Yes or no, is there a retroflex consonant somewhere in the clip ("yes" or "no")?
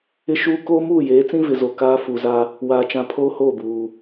no